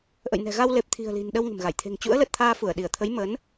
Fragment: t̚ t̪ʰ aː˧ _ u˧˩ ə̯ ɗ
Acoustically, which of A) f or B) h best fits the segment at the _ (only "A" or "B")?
A